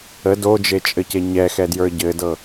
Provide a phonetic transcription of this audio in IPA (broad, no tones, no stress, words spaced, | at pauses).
ə dod͡ʒet͡ʃʼɘce ɲɛxɛdjə˞ ɟɘdɤ